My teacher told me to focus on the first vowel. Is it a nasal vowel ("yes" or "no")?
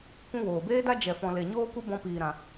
yes